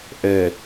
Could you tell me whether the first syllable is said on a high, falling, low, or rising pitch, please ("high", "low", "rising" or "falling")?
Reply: low